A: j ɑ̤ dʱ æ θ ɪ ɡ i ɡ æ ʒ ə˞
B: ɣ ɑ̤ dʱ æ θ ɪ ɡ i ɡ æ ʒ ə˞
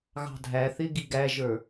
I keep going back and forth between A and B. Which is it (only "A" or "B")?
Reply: B